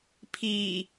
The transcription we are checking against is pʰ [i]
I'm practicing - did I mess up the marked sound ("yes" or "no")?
yes